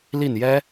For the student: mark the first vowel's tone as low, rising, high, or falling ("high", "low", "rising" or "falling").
falling